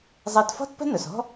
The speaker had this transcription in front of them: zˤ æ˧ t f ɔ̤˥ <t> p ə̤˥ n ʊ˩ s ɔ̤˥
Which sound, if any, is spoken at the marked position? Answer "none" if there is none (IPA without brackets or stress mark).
t